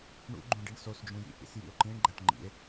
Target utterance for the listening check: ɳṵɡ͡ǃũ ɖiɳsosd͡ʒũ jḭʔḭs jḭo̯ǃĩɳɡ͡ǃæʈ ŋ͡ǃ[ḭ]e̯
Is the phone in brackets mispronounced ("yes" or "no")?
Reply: no